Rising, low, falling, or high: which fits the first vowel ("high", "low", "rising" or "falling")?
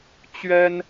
high